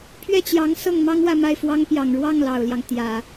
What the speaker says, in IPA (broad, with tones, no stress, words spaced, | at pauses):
pʰɥɛ˥˩t͡ɕjɑ˧˥ŋ sɤ˥˩ŋmɑ˥ŋwä˥˧ ma˥˩ɪ̯fwɑ˥ŋ pjɑ˨˩ŋɻwɑ˥˩ŋ lɑ˨˩ʊ̯ljɑ˦ŋ t̪jä˨˩˦